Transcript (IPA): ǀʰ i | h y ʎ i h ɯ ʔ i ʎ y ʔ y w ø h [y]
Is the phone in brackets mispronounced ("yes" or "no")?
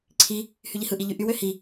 yes